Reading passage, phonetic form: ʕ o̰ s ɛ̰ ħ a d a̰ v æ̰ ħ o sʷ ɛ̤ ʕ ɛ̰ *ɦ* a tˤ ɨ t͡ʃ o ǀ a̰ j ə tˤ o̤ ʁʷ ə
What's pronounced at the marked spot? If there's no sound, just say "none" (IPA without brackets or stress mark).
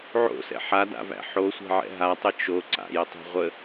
ɦ